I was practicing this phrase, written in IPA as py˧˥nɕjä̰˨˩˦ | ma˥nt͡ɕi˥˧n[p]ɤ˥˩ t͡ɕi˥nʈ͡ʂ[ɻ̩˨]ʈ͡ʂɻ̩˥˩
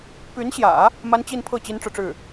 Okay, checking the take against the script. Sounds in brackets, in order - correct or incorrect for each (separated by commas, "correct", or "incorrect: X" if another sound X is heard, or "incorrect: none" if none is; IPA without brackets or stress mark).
incorrect: pʰ, correct